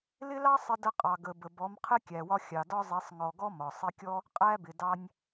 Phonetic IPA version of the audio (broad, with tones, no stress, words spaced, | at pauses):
lɪ˦lɑ˦ sˤɪ˧də˧ qʼɑ˨ɡə˨ bə˨bɔ˨˦m qʰɪ˦kʲæ˨wɒ˧ xʲɑ˨dɒ˦zˤi˨˦sˤ ŋɔ˨ɡɔ˦ mɒ˨ sˤi˧kʲɔ˦ | qʼæ˦bɪ˨ dɑ˧nʲ